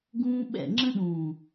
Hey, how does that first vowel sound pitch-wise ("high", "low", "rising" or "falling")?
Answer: high